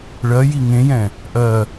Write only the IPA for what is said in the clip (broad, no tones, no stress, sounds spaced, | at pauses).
ɭ ɜ j i ŋ ẽ j ɛ̃ | ʔ ɜ